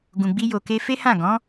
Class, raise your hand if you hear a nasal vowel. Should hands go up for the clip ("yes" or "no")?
yes